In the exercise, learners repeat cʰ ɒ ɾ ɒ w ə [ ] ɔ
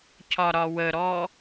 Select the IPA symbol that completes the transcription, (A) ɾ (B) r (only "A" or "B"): A